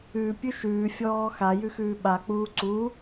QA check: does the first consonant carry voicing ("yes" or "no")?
no